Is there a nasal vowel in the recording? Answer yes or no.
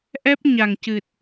no